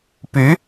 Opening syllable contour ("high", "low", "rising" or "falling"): rising